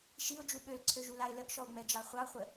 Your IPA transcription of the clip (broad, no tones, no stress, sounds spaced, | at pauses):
ʃ i ʊ̯ d͡ʒ u ɓ ø l ǀʰ ø ʒ u l a ɪ̯ l ə ʔ ʃ ɔ ʊ̯ ŋ͡m ɛ d͡ʒ ɑ χʷ ɑ χʷ ə